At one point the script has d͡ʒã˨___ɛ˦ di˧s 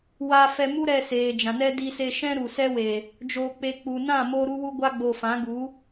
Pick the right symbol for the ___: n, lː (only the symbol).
n